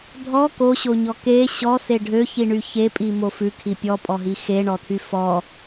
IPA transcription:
dʱɔ koɕoɲɔ ke ɕɔse ɖʱøçiɳy çepʼimo fʉkʰi pʲɔpʼɔɦi xeɳɔtʰy fɔ

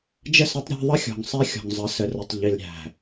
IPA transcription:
d͡ʒə˦˨sʌ˦tˤɾʲæ̤˦ ðˤə˦xʲɔ̤˨ŋ sˤɛ˦xʲɔ̤˨ŋ zˤə˨˦sə˨ rə˨tˤʎi˨lɾʲæ̤˨

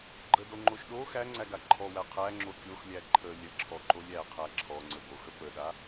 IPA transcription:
ɡ͡ǃədoŋ͡ǃoʃ ɗo xæŋ͡ǀæɡa ǃʰɔwæ qʰæŋ͡ǁo kʲoxlʲæ ǃʰə lʲəǁʰɔǃolʲ æqʰæ ǁʰɔŋ͡ǀəboxə pəɗa

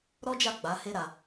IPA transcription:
ɾɔ˦d͡ʒa˦˨ ɡ͡ba˨˦he˦ɾa˧

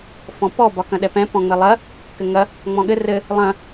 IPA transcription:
fɔ̃pɔ bɒkɐ̃ɗɛpɛ̃ pɔ̃ŋ͡mɘlˠɐ | kɘŋɐ | ŋ͡mɔ̃ɠɘ rɘ | lˠɐ̃

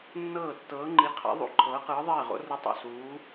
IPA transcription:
nːɤː˥˨ tːɤː˧˥ŋ͡ǃi˧˥ qʰa̰˧˥ ðˤṵ˥˨ǃʰɤː˧˥qɯː˧˥ ðˤeː˥˨ʁo̰˧˥rɯ˧˥tˤo̰˥˨ suː˧˥

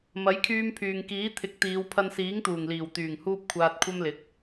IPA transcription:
mɐ˨˥jkʰyː˧mpʰyː˨ŋ kiː˨˥t̪ʰɪ˨˥k̚t̪iː˨˧w pʰɐ˧nsiː˨˥ŋt̪uː˨˩ŋliː˨˩w t̪yː˨˩ŋhuː˧p̚ kʷʰaː˧t̚kʷʰɐ˥mlɪ˨˥k̚

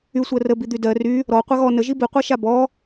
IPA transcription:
y sʷɜrəbi d̪ydɜ ry | ɾɔ qʷɐɣɔ nəʒi biqʷaʃa bɔ

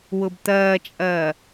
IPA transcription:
wʊbt̪ɐːt͡ʃʼɐː

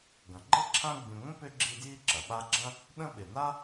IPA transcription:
ɡɐ̃˩ɡ͡ǃɪ˥ǁʰã˦ ɡ͡bĩ˨ŋʷə̃˥ pʏ˥ɡ͡ǁi˦dji˥ ǁɐ˩ ɓa˦ɡ͡ǁɐ̃˥ | ɗə̃˦ɓɪ˩na˥

